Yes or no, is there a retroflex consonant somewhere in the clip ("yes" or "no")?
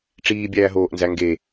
yes